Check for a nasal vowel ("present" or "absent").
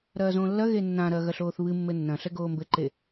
present